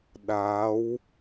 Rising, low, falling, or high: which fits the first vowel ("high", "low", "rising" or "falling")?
rising